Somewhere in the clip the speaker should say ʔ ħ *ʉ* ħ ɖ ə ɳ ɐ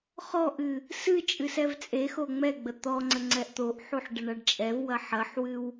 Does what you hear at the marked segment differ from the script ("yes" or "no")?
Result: yes